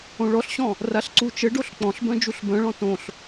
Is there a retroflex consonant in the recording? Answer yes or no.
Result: yes